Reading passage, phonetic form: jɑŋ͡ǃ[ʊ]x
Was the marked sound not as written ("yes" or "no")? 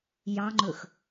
yes